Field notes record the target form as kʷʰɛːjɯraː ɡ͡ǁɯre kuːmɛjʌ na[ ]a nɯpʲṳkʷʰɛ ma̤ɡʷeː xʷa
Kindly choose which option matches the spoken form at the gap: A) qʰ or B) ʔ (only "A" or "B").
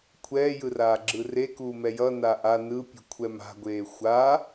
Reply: B